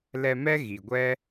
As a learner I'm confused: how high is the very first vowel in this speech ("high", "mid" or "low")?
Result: mid